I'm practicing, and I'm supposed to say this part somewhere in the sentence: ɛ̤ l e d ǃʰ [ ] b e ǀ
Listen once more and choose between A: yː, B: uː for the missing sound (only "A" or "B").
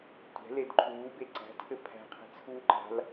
B